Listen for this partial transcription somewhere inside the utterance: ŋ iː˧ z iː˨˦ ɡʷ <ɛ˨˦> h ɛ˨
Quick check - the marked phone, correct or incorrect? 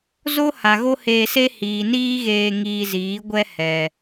incorrect